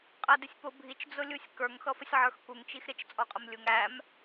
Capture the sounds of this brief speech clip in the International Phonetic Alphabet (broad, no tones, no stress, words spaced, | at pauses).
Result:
qʼædɪsʲpʊ bʱit͡ʃ d͡zʊlʲusʲkə˞ŋ xʌfəsʲʕə˞xkuŋ t͡ʃixɾɪt͡ʃ t͡sʼɔqʼəmlʲuŋ æm